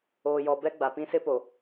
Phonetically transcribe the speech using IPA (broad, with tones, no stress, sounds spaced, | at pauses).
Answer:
oː˨ j ɔ˨ b ɛ˦ ɡ͡b a˨ p ĩ˦ s ɪ˦ p o˨